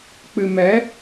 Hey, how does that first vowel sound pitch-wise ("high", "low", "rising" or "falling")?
low